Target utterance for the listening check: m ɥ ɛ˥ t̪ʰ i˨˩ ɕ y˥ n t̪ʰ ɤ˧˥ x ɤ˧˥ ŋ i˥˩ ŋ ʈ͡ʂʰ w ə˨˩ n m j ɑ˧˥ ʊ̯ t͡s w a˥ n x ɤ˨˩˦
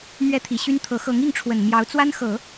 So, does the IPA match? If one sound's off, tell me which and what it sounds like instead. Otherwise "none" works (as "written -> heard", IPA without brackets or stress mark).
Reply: none